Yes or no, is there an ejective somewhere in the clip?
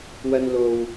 no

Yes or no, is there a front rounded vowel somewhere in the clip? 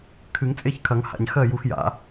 no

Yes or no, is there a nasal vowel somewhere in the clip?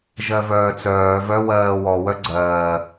no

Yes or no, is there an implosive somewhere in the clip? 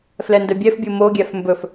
no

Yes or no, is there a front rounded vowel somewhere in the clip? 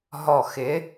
no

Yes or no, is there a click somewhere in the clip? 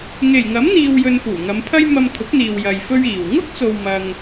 no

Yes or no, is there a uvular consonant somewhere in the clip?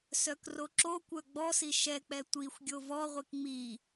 yes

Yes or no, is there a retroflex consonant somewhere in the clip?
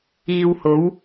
no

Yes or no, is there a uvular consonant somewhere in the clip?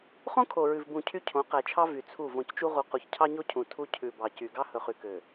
yes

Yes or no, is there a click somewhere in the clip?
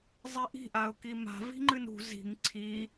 yes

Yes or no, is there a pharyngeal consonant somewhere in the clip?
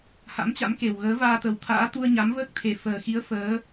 no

